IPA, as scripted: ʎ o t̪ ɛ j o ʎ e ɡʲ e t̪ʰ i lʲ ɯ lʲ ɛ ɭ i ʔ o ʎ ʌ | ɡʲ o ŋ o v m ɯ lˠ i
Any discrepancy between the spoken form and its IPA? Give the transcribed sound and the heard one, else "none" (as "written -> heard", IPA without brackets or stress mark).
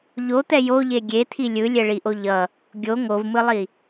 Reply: none